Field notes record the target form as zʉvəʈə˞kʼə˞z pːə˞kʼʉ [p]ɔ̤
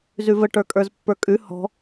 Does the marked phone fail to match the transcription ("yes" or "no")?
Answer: yes